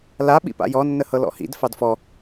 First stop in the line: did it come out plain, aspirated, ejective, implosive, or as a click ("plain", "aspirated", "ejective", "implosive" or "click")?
implosive